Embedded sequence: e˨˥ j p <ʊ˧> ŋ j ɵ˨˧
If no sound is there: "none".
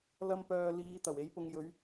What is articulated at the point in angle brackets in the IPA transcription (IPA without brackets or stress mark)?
ʊ˧